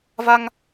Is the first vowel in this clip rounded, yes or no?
no